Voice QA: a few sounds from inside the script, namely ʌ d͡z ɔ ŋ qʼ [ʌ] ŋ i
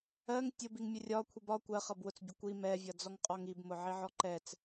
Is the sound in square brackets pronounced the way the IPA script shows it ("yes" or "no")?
no